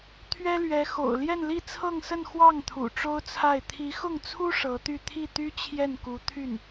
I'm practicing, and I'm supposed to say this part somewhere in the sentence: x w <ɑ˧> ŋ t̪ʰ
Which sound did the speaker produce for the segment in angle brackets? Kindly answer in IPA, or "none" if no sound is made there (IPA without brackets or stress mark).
ɑ˥˩